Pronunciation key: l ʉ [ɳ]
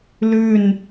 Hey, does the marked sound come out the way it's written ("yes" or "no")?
no